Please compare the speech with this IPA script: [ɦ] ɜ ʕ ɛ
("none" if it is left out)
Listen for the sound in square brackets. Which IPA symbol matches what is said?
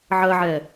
ʕ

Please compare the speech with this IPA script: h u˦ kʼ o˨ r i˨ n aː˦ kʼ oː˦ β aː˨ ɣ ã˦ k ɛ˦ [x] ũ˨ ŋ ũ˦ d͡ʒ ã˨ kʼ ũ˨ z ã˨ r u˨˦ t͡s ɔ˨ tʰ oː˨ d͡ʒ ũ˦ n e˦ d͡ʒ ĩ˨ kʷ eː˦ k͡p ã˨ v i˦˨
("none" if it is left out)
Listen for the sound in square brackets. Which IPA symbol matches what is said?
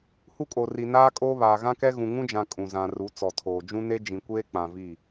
ɣ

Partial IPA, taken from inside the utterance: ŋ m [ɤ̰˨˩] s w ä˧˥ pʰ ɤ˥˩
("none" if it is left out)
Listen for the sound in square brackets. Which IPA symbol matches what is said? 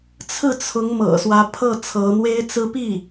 ɤ̰˨˩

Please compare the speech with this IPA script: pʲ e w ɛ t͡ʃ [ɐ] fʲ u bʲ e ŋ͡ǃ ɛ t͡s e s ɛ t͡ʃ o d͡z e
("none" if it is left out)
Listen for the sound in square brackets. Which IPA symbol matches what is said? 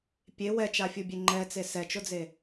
a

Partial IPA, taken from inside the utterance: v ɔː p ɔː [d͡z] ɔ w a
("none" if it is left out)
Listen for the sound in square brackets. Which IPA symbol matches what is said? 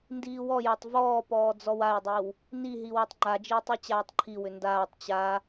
d͡z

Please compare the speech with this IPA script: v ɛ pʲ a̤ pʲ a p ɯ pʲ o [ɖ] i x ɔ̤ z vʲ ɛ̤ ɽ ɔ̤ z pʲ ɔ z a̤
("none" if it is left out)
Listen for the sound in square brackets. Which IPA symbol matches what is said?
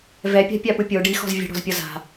ɖ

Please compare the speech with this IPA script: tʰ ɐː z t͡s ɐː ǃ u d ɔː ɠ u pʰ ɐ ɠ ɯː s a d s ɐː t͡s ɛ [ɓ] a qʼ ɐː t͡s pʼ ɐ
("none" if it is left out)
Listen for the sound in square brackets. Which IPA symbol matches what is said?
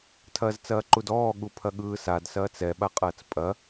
ɓ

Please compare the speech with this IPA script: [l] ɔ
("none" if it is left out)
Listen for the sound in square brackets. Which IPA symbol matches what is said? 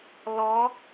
l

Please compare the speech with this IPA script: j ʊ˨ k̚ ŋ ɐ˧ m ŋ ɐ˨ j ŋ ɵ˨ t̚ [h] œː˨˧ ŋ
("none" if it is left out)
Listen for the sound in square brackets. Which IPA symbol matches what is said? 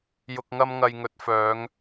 f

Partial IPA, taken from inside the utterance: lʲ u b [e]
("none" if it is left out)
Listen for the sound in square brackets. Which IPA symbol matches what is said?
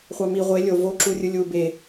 e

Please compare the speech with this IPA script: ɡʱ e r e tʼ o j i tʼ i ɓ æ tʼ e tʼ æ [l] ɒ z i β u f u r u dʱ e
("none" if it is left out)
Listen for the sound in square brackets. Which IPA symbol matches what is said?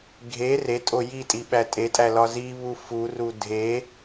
l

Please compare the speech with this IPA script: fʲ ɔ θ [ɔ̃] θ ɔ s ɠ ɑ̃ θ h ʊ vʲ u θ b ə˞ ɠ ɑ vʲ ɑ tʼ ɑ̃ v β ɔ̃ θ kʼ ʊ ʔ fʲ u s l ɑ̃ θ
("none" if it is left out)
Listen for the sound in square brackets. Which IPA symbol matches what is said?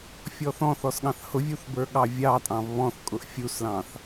ɔ̃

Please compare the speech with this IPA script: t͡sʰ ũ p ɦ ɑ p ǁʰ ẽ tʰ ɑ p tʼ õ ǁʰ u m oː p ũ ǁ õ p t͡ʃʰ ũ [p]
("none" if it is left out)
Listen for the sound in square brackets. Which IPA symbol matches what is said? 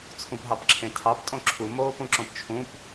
p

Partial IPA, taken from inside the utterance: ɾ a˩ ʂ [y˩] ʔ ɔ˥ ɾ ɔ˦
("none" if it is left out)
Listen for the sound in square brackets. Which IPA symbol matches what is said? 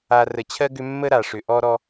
ʏ˩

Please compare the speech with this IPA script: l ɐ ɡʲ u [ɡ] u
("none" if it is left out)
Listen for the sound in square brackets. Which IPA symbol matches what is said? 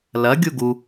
ɡ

